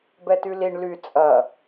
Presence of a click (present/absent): absent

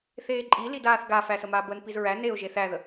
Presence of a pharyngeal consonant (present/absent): absent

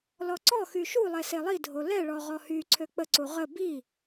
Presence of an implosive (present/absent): absent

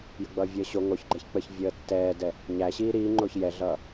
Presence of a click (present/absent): present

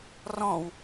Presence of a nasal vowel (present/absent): present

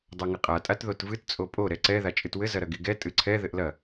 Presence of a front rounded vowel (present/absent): absent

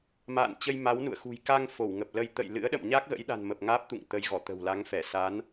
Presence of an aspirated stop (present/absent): absent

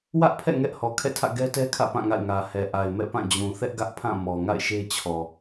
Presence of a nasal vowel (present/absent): present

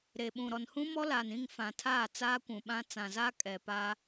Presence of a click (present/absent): absent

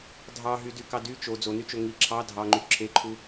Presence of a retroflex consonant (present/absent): absent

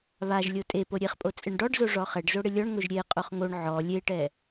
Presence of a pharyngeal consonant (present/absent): present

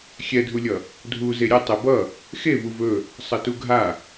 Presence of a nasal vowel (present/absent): absent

